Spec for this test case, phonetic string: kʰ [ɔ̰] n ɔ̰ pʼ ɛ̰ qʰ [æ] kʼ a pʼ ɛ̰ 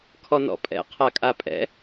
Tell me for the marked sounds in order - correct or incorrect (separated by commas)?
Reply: incorrect, incorrect